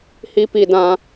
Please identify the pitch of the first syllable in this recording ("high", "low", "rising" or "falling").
high